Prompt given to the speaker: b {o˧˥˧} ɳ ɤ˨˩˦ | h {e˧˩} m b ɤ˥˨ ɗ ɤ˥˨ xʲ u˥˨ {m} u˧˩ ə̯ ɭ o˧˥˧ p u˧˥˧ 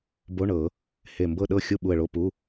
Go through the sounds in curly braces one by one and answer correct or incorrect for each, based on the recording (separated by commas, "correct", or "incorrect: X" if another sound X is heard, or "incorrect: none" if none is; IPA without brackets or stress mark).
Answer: correct, correct, incorrect: ɓ